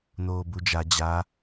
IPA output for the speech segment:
n̪ oː b u d͡ʒ a d͡ʑ a

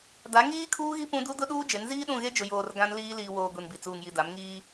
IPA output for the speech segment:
d a˨˦ ŋ iː˦ kʰ uː˦ ɣ i˦ p ũ˦ d u˦ d ʊ˦ ɗ uː˦ d͡ʒ e˨˦ n z iː˦ ɗ ũ˦˨ ɣ e˦ d͡ʒ ʊ˨ j oː˨ r ɡ ã˦ n l iː˦ l iː˨ w oː˨ ɡʷ i˨ n b i˨ t͡s uː˨ ŋ j i˨ d a˨˦ m ŋ iː˦

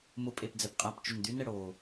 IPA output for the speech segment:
m ʊ pʼ e p d͡z ɛ p qʼ a p t͡ʃ ʏ n d̪ y n ɛ ɽ oː

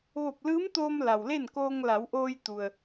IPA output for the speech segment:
ʋ o˧˩ p̚ l ɯː˧˥ m t̪ oː˧ m l a˩ w l e˥˨ n k oː˧ ŋ l a˩˧ w ʔ oː˧ j t̪ u˩ ə̯

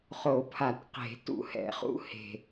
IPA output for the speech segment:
χ o˨˩˦ pʰ a˨˩˦ t q e̤˨˩˦ t ṵ˨˩ h ɛ̰˨˩˦ χ ṵ˧˥ h e̤˨˩

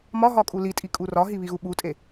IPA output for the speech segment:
m ɒ ɦ ɒ kʼ u l i tʼ i kʼ u r ɒ ɦ i β i ɣ u ɓ u tʼ e

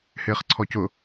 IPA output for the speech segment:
h ɪː χ ǀʰ ɔ c ʊ

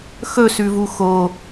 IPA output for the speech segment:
x ɵ s ʉ v u x o

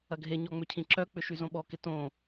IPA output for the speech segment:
ɐ ɡʱ e ɲ ɔ ŋ͡m ʏ cʰ ĩ ǁ œ k͡p ʏ ʃ y z õ ɓ ɔ k ɪ t õ

